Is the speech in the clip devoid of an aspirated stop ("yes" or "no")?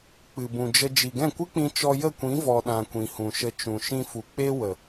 yes